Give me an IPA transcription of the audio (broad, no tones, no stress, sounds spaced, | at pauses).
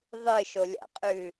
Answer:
ðˤ ɨ ʃ o lʲ a̰ qʼ ʉ